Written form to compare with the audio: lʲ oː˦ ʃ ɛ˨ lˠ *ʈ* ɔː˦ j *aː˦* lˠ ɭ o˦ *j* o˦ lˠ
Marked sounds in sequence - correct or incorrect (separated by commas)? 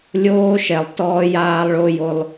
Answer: incorrect, correct, correct